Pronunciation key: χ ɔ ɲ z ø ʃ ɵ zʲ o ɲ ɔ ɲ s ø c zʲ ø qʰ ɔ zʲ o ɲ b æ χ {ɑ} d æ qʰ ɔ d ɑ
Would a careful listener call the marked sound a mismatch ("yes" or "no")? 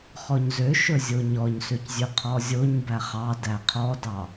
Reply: no